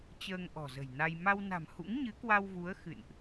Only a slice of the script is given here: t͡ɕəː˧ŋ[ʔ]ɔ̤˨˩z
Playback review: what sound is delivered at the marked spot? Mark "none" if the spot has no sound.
ʔ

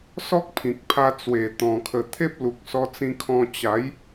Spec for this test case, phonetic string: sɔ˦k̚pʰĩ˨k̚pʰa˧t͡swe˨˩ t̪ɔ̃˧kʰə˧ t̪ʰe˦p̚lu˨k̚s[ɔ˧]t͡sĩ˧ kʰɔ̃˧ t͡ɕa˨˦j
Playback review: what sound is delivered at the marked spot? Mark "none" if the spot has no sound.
ɔ˧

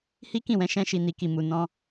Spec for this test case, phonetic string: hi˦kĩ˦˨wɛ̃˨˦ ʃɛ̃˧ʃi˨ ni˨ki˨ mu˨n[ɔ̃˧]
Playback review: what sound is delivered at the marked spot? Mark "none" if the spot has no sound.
ɔ̃˧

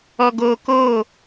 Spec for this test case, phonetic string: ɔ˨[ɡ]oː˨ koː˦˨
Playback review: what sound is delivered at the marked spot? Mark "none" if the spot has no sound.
ɡ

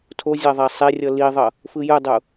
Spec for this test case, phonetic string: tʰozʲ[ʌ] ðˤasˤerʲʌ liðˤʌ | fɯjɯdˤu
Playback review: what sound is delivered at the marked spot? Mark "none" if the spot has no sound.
a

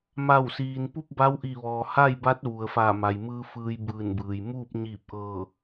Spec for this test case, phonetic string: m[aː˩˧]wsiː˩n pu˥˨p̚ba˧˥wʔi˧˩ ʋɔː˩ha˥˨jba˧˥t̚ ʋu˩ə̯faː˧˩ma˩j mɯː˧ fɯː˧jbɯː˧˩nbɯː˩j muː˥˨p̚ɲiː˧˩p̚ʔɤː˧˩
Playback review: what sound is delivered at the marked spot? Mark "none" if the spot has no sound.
aː˧˩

